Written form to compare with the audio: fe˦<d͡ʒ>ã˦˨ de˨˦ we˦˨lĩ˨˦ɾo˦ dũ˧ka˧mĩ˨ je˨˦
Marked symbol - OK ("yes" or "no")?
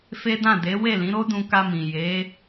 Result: no